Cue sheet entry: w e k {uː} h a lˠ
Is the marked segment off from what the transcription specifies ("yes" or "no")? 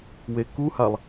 yes